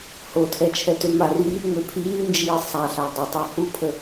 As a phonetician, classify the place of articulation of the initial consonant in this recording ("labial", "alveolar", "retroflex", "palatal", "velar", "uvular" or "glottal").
glottal